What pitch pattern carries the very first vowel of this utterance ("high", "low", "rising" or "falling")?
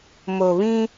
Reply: low